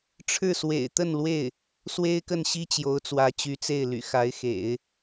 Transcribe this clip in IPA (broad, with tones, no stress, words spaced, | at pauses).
ʈ͡ʂʰɻ̩˥˩swḛ˨˩ɪ̯t̪ə˥˧nlwe˥˩ɪ̯ | swe˥ɪ̯kə˥˩nɕi˥ t͡ɕjo˧˥ʊ̯t͡swä˧˥t͡ɕy˧˥t͡se˥˩ɪ̯ ly̰˨˩xa˧˥ɪ̯xḛ˨˩˦ɪ̯